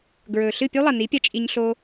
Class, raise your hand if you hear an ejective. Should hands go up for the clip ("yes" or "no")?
yes